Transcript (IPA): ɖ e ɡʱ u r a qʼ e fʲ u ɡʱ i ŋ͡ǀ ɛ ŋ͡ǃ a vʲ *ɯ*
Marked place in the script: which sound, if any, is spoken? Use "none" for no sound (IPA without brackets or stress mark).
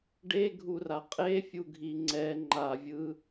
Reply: ɯ